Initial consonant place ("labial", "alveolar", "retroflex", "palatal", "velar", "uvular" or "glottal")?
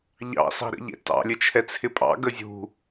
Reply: palatal